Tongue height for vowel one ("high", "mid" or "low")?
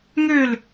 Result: mid